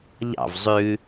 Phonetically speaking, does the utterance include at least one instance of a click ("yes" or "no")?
no